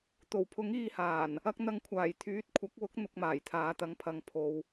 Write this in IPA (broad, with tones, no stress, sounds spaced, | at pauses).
t̪ o˨˩ w pʰ ʊ˨˥ ŋ iː˧ h aː˨˩ n | ɐ˧ k̚ n̪ ɐ˧ ŋ kʷʰ aː˨˩ j t̪ʰ yː˨˥ t̚ kʷʰ ɐ˨˥ k̚ w ʊ˨˥ k̚ n̪ ʊ˨ k̚ m aː˨˩ j t̪ʰ aː˨˧ t̪ ɐ˨˥ ŋ pʰ ɐ˨˧ ŋ pʰ o˨ w